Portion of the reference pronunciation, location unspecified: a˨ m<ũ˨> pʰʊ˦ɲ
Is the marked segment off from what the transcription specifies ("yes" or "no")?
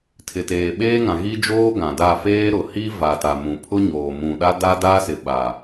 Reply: no